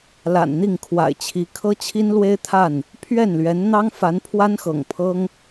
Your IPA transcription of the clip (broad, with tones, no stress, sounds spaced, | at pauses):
l a̰˨˩ n n̪ i˥˨ ŋ kʰ w a̰˨˩ ɪ̯ t͡ɕʰ i˨˦ kʰ ɤ˦ t͡ɕʰ i˦ n l w e˦ ɪ̯ t̪ʰ a˥˨ n | pʰ ɥ ɛ˥˨ n l ɥ ɛ˨˦ n n̪ ɑ˦ ŋ f a˨˦ n pʰ w a˦ n x ɤ̰˨˩ ŋ pʰ ɤ˦ ŋ